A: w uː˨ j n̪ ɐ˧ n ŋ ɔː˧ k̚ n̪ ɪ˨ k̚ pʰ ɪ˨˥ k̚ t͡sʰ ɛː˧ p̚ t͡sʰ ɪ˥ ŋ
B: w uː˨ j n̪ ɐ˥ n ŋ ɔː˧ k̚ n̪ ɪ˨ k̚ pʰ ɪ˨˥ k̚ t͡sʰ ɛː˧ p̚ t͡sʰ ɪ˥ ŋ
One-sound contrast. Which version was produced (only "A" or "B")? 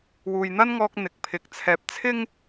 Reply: B